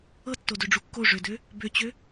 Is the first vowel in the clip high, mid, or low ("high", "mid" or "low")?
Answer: mid